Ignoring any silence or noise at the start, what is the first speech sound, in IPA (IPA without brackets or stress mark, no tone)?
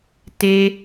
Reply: t